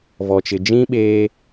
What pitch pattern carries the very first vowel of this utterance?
low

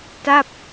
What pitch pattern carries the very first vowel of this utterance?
falling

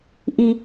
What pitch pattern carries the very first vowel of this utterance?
high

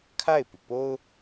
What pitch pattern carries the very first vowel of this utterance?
falling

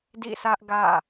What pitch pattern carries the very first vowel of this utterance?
falling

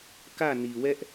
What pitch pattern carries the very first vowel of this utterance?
falling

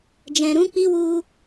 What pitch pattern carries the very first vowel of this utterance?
low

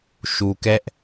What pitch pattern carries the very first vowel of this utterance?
low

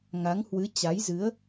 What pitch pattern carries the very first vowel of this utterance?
rising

